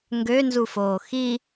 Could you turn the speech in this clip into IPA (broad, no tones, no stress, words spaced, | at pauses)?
ŋɡønzufoː xi